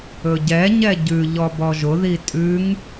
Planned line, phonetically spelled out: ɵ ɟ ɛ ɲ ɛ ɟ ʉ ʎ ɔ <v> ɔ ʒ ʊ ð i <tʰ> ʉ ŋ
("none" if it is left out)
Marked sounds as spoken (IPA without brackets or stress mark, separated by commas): b, tʼ